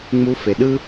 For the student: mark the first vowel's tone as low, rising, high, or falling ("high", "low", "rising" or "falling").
high